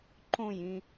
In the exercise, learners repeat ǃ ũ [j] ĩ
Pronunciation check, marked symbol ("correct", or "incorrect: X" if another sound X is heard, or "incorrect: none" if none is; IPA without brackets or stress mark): correct